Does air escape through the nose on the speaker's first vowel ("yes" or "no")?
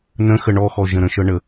yes